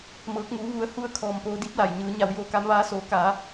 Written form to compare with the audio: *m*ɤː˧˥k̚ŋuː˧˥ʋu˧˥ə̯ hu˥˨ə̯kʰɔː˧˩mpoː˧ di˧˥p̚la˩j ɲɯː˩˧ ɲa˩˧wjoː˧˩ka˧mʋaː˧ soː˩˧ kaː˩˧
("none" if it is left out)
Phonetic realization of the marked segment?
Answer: m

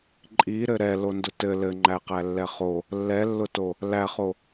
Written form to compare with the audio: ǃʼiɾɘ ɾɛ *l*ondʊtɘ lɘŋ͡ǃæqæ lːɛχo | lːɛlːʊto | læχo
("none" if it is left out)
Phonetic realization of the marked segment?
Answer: l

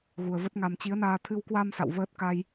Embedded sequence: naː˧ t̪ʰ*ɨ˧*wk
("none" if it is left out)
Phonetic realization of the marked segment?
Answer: ɨ˧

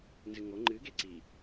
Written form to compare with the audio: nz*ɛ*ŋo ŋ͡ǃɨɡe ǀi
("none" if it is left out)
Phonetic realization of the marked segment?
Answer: ɨ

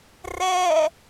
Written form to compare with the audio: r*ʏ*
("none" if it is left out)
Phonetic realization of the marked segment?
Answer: ɛ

